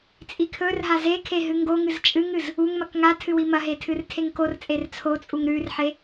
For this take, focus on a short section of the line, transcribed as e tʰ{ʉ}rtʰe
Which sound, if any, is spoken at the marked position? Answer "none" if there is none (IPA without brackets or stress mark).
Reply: ɨ